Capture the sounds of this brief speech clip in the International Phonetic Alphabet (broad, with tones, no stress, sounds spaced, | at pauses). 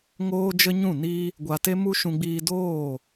ŋ oː˦ d͡ʒ ə˦ ɲ ũ˦˨ n i˦ | ɡʷ a˧ t e˦ m u˦ ʃ ũ˧ ɡ͡b iː˧ d oː˦˨